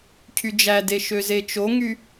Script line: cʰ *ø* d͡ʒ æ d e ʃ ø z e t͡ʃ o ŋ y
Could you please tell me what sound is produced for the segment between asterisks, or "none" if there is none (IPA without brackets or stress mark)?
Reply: y